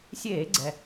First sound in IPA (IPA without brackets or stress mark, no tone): sʲ